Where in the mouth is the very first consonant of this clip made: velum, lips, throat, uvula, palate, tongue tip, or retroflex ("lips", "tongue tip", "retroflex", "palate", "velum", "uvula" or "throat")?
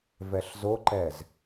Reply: lips